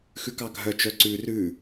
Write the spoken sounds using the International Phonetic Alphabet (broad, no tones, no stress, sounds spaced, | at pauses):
x ʉ k ɑ ɡʱ œ t͡ʃ œ ǀ ʉ r ʉ